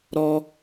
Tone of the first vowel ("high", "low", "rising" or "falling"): high